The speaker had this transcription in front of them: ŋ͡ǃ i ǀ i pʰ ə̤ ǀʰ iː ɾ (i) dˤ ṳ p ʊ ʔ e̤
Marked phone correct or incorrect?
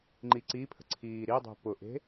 correct